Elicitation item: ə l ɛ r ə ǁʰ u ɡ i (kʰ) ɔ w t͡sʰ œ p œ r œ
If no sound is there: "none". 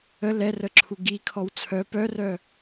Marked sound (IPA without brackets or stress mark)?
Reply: kʰ